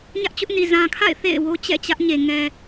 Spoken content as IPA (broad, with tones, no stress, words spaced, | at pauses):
ɲä˦ʔt͡ɕʊ˦ʔni˨ zã˨kʰa̰˦˨ɪ̯ θḛ˦˨ɪ̯ wo˦t͡ɕɛ̰˦˨t͡ɕä˦ʔ ɲe˨ ŋɛ˨